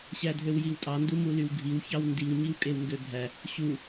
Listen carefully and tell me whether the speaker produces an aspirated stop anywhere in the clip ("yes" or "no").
no